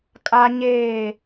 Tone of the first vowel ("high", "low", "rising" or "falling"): high